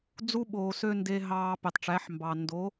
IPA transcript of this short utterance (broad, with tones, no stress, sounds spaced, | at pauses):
d͡z u˦ ɓ oː˨ s ø˦ n d e˧ ɦ ɑː˧ p e˨ tˤ ʈ͡ʂ æ˨˦ ħ m b ɑ˨ n d o˨˦